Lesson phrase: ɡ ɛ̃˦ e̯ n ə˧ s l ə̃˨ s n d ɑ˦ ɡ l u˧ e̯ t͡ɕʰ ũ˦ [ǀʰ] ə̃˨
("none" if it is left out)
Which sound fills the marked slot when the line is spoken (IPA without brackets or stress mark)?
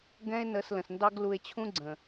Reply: ɡ͡ǀ